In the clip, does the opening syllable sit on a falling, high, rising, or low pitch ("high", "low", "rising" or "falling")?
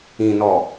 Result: low